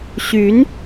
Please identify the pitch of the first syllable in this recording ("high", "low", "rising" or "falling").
rising